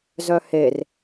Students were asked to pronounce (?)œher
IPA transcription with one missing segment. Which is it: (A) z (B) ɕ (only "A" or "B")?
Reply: A